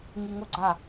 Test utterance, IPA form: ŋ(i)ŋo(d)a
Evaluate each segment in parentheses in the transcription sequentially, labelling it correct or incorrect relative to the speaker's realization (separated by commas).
correct, incorrect